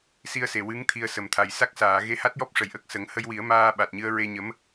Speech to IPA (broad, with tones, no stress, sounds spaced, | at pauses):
s i˧ ə̯ s e˨˩ w ɨ˧˥ ŋ t̪ʰ i˧ ə̯ s ə˨˩ m t̪ʰ a˨˩ j s a˦˥ k̚ s aː˨˩˨ ɣ e˧ h a˦˥ t̚ j ɔ˦˥ p̚ ʂ ə˨˩ j ʔ ə˦˥ k̚ s ə˨˩˦ ŋ h ə˧ j w i˨˩˦ ə̯ m aː˧ ɓ a˨˩ t̚ ɲ ɨ˧ ə̯ ɹ e˧ ɲ ə˧˥ m